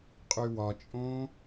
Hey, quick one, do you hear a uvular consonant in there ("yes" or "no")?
yes